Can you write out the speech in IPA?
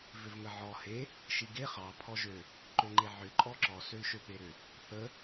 v ʏ v ŋ ə ʕ ɔ h e | ʃ i ɡ e χ ɑ pʰ ɔ ʒ ø | ǃ ø ŋ͡ǃ e ʕ ʏ ǃʼ ɔ ǁ ɔ s ø l ʃ ø p e ɾ ʏ | θ ə

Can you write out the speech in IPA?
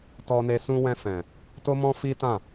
t ɔ˧ n e˧ s ũ˧ w ɛ̃˧ f ɛ̃˨ | t o˦ m ɔ̃˦ f i˦ t ã˦˨

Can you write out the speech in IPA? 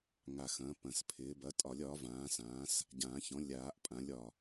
ŋ a˨˩ x ɐ̃ː˩˥ p ɐ̃˨˩ s pʰ ɪː˩˥ b ɐ˩˥ tʼ ɒ˨˩˦ lʲ ɒ˩˥ v ãː˩˥ s ãː˩˥ s | ɟ ãː˨˩˦ ç ɔ̃˩˥ lʲ aː˨˩˦ ʔ pʼ ã˩˥ lʲ ɒ˨˩

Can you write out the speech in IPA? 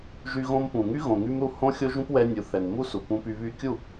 ʒ y˧ ɣ õ˧ m p ũ˨ ŋ y˦ ɣ õ˨ ŋ y˧ m ɾ u˦˨ h õ˦ xʲ o˦ ʒ ũ˦ p w ɛ˧ nʲ u˨ θ ɛ˨ n m u˦ s u˨ p ũ˧ p y˧ β y˧ kʲ u˦˨

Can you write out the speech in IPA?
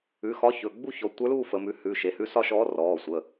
ʉ˩˧˩ x ɒ˧˥ ç ɵ˩˧˩ ɡ͡b u˥˧ ç ɔ˩˧ tʷ ə˞˧˥ l uː˥˧ f ə˩˧ m ʉ˩˧ h ʉ˩˧˩ ʃ e˩˧ h ʉ˧˥ s ɒ˥˧ ʃ ɔː˧˥ r ɔː˩˧˩ sʷ ə˩˧˩

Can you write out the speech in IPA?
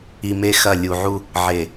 i˨ m e˦˨ x ɐ˦˨ lʲ u˨ ʕ u˦ | ʕ e˨

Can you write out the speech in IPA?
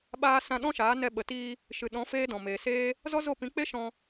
ɓ aː˦ s ã˧ ɗ ɔ̃˦ ʃ aː˨˦ n ɛ˧ ɓ ə˨ t iː˧ | ʃ ɨ˨ ɗ ɔ̃˨˦ f eː˦ d ɔ̃˨ m eː˨ s eː˦ | z ɔ˦ z o˦˨ p ĩ˨˦ k͡p e˦ ʃ ɔ̃˧

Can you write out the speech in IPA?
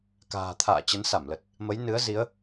k a̤ː˨˩ t̪ʰ a̰ː˧˨ t͡ɕ ə˨˦ n s a˧˩ m l ə˨˩ t̚ | m ə˨˦ j n ɨ˨˦ ə̯ z i˨˦ ə̯

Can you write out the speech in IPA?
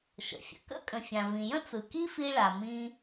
ʃ ə̰˩ fʲ ə̰˩ k ə̰˥ kʼ ə̃˩ fʲ ã˩ v ĩ˩ j ə̃˥ t͡s ɯ˩ k i˥ f i˧ ɭ a˩ m ĩ˧

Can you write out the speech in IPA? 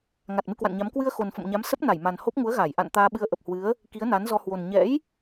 ŋ a˨˩ t̚ m ɨ˧ k w a̰˧˨ n ɲ a˨˦ m k w ɨ˧ ə̯ x o˨˩ n f ə̰˧˨ m ɲ a˨˦ m s ə˦˥ p̚ n a˧˩ j m a˨˩ n h o˦˥ p̚ ŋ u˨˦ ə̯ ɣ aː˧˩ j ʔ a̰˧˨ n t̪ aː˧ ɓ ɨ˧ ə̯ ʔ ə˨˩ p̚ h w ɨ˨˦ ə̯ | k i˨˦ ə̯ n a˨˦ n z ɔ˧ h w o˨˩ n ɲ ɛ̰˧˥ j

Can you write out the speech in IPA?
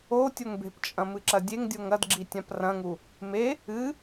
o tʲ o ŋ b e̤ p t͡ʃʼ ɐ̃ m ɨ ǁ ɐ dʲ e ŋ dʲ o ŋ ɐ d ɡ͡ǁ i tʲ ã p r ɐ̃ ŋ u | m e | ɨ

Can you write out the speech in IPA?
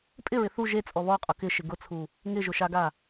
pʼ ɪ ɹ ɪ θ u ʒ e t͡sʼ ɔ β ɔ qʼ ʊ k ɪ ʃ ɪ ɡ ʊ t͡sʰ u | ŋ ɪ ʒ ʊ ʃ a ɡ a

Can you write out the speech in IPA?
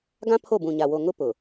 ɡ ã˦ pʰ o˦˨ b ũ˨ ɲ a˨ w o˨ ŋ ʊ˦ p ʊ˨

